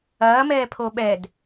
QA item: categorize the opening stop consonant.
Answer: aspirated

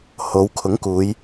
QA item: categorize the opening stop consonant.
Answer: aspirated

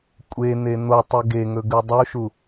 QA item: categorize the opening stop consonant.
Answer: ejective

